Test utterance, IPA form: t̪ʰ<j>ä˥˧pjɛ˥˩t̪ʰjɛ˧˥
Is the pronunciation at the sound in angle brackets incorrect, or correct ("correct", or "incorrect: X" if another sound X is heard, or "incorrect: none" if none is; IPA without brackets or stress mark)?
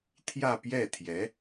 correct